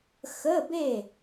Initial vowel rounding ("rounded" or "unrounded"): unrounded